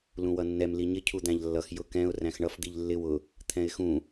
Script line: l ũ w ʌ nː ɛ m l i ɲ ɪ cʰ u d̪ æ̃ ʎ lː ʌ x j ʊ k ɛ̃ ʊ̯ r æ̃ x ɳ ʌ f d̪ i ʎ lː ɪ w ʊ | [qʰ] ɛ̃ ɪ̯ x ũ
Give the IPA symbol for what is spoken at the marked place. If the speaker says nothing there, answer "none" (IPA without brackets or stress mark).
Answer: t̪ʰ